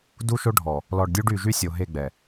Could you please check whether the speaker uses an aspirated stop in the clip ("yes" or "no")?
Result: no